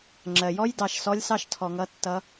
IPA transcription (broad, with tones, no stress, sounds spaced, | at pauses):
ŋ͡ǁ ɜ˩ j ɔ˥ j d ɑ˩˧ ʃ s ɔ˧˥ lʲ s ɑ˥ ʃ tʰ ɔ˩ ŋ ʌ˧˥ tː ʌ˧˥